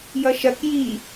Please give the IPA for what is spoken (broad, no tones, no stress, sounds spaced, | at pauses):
j ʌ ʃ ɐ k j i